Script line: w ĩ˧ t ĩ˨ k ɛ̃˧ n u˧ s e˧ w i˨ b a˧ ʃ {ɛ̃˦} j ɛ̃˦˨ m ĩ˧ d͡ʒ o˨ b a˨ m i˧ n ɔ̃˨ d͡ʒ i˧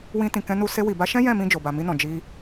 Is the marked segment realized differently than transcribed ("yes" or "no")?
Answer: no